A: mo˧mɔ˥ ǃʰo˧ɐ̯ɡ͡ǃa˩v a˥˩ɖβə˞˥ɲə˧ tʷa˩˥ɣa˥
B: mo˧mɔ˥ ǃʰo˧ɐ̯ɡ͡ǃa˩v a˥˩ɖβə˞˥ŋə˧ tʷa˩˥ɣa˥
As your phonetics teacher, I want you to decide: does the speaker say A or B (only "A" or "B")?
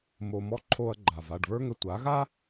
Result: B